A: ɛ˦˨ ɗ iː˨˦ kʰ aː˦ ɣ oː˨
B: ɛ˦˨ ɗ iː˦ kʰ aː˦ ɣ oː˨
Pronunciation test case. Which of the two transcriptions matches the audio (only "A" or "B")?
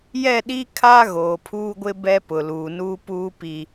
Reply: B